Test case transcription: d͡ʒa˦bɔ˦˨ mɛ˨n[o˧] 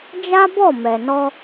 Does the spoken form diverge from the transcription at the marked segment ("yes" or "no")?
yes